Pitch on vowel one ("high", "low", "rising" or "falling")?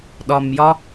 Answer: low